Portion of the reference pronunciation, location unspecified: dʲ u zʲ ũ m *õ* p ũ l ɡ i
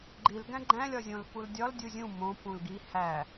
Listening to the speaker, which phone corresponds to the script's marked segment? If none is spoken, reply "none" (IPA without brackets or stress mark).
õ